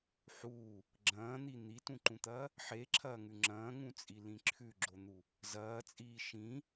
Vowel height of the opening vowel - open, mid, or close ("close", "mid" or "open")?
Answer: close